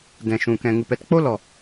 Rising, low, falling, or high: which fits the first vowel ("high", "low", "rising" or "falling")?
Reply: low